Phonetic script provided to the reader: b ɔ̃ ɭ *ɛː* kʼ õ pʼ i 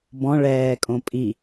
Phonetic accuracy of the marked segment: correct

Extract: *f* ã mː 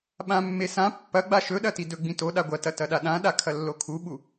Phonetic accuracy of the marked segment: incorrect: ɓ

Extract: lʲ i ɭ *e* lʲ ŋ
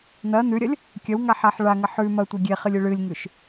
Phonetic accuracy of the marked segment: incorrect: ɨ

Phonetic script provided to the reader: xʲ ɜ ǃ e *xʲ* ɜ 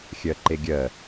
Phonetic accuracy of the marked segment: incorrect: ɡʲ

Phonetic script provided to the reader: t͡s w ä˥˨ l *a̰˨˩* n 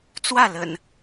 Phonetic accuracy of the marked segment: incorrect: ə̰˨˩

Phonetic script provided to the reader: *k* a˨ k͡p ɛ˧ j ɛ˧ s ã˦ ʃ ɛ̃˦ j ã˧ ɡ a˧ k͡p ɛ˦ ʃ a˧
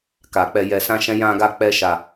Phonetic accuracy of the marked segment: correct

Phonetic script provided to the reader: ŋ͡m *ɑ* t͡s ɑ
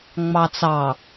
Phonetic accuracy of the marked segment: correct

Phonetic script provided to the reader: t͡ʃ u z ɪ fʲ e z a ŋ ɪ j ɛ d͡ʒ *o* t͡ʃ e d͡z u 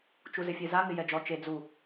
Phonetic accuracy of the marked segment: incorrect: ɔ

